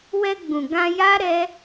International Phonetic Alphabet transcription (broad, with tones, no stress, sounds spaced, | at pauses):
w ɛ˧ ɡ͡b ũ˨ ɡ ã˧ j a˦ ɾ ɛ˦